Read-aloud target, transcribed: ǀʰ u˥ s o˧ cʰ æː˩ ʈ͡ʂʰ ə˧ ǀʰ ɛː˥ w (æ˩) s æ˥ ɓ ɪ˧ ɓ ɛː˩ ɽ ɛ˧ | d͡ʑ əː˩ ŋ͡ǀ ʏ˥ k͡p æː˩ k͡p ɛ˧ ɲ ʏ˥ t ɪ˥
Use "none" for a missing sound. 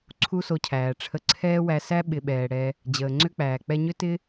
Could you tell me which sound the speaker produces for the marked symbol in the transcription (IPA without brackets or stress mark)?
æ˧